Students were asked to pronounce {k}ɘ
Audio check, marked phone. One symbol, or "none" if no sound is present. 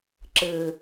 ǁ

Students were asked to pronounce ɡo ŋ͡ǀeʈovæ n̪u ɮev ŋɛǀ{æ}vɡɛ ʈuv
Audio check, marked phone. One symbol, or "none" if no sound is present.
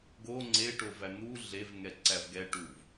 æ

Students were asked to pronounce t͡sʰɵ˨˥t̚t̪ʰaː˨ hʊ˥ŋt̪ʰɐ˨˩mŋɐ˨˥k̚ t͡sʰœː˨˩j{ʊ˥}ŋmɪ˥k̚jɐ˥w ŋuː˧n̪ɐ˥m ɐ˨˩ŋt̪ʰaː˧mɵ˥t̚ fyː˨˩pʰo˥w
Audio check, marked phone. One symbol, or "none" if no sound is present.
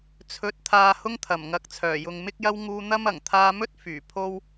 ʊ˨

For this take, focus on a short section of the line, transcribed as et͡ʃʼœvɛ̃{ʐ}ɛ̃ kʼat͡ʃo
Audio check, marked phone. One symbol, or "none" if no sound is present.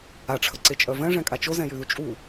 ʐ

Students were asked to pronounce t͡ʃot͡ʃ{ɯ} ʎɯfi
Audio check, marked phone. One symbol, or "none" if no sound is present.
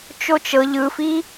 ɤ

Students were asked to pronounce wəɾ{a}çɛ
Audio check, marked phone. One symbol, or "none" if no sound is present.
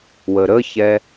ə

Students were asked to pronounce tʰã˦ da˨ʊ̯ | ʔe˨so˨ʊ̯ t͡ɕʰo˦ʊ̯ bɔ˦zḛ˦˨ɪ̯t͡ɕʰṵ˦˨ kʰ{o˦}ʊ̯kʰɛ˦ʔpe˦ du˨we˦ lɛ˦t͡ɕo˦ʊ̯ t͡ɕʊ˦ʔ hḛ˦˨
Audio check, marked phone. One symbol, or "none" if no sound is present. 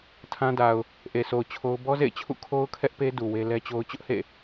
o˦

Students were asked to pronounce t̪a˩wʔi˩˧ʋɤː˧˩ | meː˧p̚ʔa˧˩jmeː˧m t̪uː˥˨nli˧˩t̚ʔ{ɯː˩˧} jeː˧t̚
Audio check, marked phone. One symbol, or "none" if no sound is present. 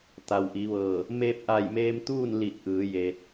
ɯː˩˧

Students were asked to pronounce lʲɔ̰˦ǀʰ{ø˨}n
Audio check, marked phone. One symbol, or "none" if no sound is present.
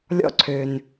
ø˨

